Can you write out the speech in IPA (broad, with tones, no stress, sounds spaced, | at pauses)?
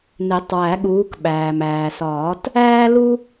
n e˨˩˦ tˤ w æ˨˩˦ ɠ uː˨˦ k ɓ æː˩ m æː˩ s ɒː˨˩˦ t | æː˥ l u˥